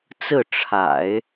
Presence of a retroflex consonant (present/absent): present